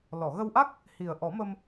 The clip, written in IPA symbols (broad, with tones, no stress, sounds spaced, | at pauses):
l ɔ˨˩˨ ɣ ə˧ w ʔ a˦˥ k̚ | h i˨˩ ə̯ ʔ ɔ˨˩˦ m ə˧ m